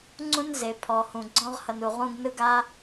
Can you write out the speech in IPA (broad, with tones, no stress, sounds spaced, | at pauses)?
ŋ͡ǀ ũ˥ n z e˩ pʰ ɔ˩ h ũ˩ ɡ͡ǀ ɔ̃˦ ʁ h ʌ˨ n u˩ ʁ ũ˦ ɡ n ɯ˥ ɡ a˥